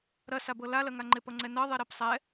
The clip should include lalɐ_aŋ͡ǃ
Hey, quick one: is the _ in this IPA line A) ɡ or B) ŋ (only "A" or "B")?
B